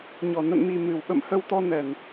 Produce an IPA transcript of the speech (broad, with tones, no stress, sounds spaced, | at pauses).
ɲ ɔ˧˩ n ə̰˧˨ n m i˨˩ m ɨ˨˩ w ɓ ə̰˧˨ m h ə˧ w t̪ ɔ˧ n ɛ˨˩ n